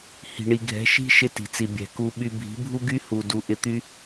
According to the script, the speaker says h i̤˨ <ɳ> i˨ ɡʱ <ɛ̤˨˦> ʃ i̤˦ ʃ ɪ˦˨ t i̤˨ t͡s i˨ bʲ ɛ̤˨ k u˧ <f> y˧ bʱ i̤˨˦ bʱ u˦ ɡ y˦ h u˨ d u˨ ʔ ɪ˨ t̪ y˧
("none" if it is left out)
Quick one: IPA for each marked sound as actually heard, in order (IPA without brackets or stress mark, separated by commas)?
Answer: ɳ, ɛ̤˨˦, ɓ